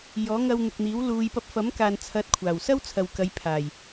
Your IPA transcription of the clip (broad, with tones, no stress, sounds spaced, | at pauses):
j ɔː˨˥ ŋ ɐ˧ w n̪ ɪ˨ k̚ n̪ iː˨˥ w l uː˨ j p ɐ˧ p̚ f ɐ˨˥ m k aː˨ n t͡sʰ ɐ˨˥ t̚ kʷʰ aː˨˩ w s ɐ˥ w t͡sʰ ɐ˨ w k ɐ˨˧ j pʰ aː˨˩ j